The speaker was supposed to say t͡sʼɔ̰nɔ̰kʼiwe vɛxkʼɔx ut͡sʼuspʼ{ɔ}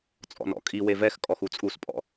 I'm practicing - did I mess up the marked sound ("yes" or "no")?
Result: yes